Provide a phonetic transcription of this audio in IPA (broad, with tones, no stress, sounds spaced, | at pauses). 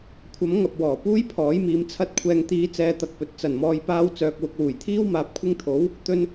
kʷʰ ɐ˨˥ m ŋ ɐ˨ p̚ w ɔː˨˩ p uː˥ j pʰ ɔː˨˥ j m iː˨˧ m t͡sʰ ɐ˧ t̚ kʷʰ ɛː˨ ŋ t̪ iː˨˧ t͡s ɛː˨ t̪ ɐ˨ k̚ p ɵ˨ t̚ t͡s ɐ˨˩ n m ɔː˨ j p aː˧ w t͡s œː˨ k̚ w ʊ˨ k̚ w uː˨˩ j t̪ʰ iː˥ w m aː˨ p̚ kʷʰ ɪ˧ ŋ t̪ʰ o˨˥ w | t̪ ɵ˧ n